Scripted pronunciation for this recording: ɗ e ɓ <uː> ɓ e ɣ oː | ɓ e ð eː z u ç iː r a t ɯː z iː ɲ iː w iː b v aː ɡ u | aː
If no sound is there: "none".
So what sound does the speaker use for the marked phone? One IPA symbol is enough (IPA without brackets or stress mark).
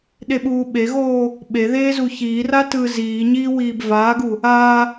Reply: uː